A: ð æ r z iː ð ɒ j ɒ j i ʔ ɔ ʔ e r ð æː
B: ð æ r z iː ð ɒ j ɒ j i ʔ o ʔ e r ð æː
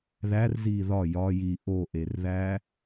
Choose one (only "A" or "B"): B